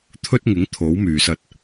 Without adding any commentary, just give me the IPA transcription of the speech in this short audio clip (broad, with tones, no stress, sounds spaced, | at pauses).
t̪ʰ ɵ˥ t̚ ŋ ɪ˨˥ ŋ t̪ʰ o˨˥ w m yː˨ s ɐ˧ t̚